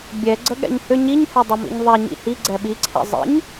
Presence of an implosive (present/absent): present